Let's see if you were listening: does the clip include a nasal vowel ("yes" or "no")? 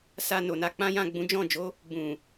yes